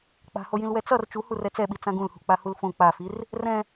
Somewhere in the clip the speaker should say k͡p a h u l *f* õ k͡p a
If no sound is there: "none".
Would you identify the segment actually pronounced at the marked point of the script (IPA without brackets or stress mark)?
f